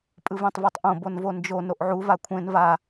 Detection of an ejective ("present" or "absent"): present